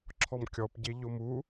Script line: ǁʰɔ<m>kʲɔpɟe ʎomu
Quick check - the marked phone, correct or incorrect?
correct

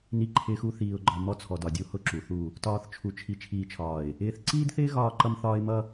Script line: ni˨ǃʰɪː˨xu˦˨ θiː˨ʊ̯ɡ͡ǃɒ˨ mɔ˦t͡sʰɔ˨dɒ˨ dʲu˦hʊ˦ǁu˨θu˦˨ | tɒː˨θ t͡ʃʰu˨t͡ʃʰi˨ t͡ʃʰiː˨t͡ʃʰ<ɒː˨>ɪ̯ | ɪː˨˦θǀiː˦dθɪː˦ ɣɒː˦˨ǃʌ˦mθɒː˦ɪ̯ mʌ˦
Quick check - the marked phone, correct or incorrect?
correct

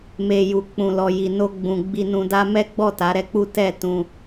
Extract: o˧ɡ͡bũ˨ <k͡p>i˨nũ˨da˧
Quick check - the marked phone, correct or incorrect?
incorrect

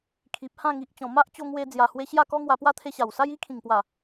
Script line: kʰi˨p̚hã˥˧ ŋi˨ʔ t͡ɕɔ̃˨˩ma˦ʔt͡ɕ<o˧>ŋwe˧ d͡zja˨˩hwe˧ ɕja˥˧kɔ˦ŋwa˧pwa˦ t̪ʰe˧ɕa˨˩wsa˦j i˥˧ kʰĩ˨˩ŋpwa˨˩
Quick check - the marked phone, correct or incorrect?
correct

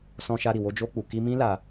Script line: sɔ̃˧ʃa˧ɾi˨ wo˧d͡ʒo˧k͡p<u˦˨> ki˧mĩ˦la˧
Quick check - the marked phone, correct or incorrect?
incorrect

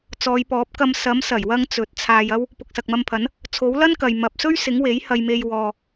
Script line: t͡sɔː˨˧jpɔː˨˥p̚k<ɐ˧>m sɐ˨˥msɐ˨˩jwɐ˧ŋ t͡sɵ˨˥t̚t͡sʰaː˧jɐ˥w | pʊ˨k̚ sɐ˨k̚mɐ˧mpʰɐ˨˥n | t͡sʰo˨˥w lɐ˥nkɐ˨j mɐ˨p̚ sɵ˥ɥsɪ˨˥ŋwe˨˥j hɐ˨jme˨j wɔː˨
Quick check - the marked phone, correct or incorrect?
correct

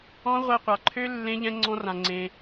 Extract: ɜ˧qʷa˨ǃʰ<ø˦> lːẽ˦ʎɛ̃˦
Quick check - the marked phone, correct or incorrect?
correct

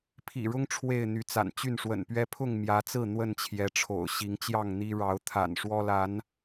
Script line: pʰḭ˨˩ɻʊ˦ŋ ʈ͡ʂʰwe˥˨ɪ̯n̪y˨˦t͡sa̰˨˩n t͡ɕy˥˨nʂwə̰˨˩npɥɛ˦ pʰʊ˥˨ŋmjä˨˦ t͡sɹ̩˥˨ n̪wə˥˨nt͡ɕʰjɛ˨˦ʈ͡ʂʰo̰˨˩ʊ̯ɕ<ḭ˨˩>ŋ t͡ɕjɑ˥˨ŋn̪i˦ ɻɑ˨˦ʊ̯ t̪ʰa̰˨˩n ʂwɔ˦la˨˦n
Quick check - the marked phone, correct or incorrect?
incorrect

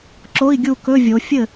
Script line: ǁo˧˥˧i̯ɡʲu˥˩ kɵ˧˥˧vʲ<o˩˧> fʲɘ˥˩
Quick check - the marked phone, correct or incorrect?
correct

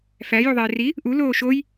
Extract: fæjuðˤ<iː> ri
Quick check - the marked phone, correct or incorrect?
incorrect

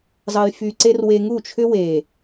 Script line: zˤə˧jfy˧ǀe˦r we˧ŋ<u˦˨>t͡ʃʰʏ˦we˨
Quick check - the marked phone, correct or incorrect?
correct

